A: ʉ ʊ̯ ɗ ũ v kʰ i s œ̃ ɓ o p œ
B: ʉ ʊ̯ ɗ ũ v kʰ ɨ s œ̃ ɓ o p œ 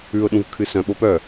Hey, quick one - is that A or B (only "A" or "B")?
B